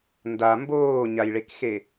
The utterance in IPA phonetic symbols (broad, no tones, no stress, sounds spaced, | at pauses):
n d a m b oː ɲ a j ɭ e k x e